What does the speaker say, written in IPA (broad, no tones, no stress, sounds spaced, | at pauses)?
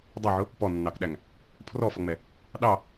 dˤ ɛ ʕ ʊ | p ɔ nː ɑ k ɗ æ ŋ | pʰ r ɔ f ʌ ŋ͡m ɛ | ɗ ɑ